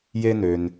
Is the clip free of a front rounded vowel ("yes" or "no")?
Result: no